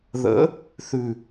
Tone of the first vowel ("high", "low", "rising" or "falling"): rising